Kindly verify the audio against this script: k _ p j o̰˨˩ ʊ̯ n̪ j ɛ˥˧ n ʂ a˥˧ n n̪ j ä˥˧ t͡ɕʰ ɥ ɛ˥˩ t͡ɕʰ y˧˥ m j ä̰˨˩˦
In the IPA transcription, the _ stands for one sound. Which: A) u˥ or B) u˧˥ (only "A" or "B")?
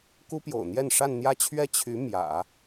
A